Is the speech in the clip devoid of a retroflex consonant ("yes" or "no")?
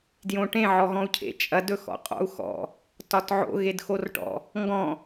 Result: no